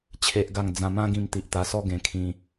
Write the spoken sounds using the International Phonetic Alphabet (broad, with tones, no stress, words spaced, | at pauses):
t͡ɕʰe˦ʔɡa˥˧ŋ d͡zã˧mã˦ɡĩ˧m t̪i˨ʔt̪a˧sɔ˦ ɡẽ˧kʰĩ˧